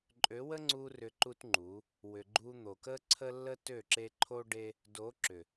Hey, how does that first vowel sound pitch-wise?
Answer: rising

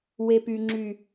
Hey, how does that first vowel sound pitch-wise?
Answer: low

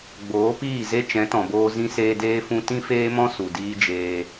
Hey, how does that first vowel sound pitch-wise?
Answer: rising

